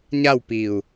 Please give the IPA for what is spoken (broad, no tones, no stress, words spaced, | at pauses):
ɲawpiu̯